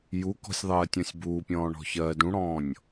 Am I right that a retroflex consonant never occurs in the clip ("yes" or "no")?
no